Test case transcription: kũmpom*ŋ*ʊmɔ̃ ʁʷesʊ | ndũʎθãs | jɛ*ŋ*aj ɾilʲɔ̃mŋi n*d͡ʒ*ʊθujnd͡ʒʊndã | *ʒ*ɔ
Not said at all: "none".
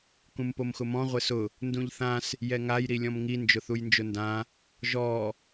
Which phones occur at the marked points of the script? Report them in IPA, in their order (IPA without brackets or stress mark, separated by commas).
x, ŋ, d͡ʒ, ʒ